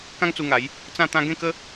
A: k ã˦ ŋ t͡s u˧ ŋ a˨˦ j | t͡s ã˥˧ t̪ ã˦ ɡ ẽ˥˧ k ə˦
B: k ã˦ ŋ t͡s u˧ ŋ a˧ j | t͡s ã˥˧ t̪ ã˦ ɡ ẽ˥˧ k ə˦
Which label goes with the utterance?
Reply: A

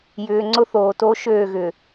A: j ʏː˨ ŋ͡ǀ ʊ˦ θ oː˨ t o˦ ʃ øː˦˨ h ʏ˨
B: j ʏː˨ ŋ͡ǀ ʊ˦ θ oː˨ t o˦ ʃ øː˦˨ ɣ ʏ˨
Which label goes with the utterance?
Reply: B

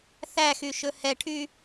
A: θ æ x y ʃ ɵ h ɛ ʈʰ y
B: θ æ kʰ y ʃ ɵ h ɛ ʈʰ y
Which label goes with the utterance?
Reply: A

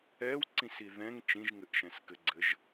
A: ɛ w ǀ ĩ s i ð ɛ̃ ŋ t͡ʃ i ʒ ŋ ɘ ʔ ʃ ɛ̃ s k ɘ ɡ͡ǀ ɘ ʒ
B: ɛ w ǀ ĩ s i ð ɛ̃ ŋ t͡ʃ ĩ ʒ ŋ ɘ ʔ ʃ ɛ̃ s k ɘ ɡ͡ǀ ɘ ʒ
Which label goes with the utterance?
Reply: B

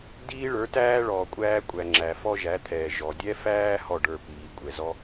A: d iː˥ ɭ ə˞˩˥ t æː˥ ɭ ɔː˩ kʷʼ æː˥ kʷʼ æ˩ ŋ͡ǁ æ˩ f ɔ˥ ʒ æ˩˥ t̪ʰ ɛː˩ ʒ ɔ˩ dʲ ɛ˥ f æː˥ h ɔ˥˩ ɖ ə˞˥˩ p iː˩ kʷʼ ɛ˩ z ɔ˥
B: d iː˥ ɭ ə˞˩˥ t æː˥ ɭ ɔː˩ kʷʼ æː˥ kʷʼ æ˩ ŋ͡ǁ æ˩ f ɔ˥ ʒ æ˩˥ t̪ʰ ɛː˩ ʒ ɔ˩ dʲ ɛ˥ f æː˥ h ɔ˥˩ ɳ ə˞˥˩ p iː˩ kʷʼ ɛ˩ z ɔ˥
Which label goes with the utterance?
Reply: A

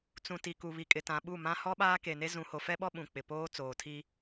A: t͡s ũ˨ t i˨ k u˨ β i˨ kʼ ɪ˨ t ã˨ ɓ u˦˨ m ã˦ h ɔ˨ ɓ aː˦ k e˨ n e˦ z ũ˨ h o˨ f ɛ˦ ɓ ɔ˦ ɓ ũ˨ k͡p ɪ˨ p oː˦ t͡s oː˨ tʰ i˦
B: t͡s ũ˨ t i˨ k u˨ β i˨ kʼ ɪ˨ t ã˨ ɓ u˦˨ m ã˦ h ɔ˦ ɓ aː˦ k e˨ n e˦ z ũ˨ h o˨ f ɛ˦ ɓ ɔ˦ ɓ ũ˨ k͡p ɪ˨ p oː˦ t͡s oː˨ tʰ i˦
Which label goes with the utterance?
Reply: B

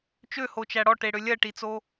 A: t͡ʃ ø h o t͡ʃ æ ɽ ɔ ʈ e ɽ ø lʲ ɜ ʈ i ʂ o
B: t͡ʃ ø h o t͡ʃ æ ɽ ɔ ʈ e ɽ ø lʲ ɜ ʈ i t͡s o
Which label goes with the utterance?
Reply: B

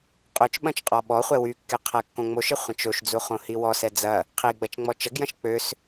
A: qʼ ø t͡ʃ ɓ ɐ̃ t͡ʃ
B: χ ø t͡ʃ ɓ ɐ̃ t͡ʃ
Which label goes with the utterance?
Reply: A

